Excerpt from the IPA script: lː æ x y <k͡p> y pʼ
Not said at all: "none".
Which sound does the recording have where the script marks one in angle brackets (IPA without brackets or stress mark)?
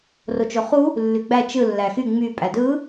ŋ͡m